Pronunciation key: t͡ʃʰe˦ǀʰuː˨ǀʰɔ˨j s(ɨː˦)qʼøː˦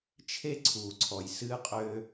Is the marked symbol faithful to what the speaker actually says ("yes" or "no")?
yes